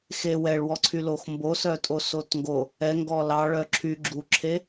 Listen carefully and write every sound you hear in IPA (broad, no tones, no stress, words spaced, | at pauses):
xe wɛɭwɔǀʰy loxmbosœtʼo sotŋɡo | ɛ ŋɡɔlɑ ɭœǁʰy ɡ͡ǁuǁʰe